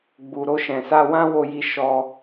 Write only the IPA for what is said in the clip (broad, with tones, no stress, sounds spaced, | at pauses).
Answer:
ɡ͡b u˨ ɾ o˧ ʃ ɛ̃˨ s a˧ w ã˦ w o˧ j i˧ ʃ ɔ˧